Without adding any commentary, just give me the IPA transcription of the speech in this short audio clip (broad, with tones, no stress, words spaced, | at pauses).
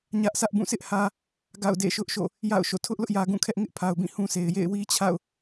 ɲä˦ʔ sʰä˦ʔbũ˦˨sʰɪ˦ʔhä˦ | ɡa̰˦˨ʊ̯dḛ˦˨ʃʊ˦ʔʃo̰˦˨ | ja̰˦˨ʊ̯ʃo̰˦˨ tʰʊ˦ʔlʊ˦ʔjä˨ ɡũ˦˨kʰɛ˦ʔ ŋɪ˦ʔpʰa˨ʊ̯bĩ˦˨ hũ˦se˨ɪ̯ jḛ˦˨ɪ̯ wi˦t͡ɕʰa̰˦˨ʊ̯